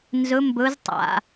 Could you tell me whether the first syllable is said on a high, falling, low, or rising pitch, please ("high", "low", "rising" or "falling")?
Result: rising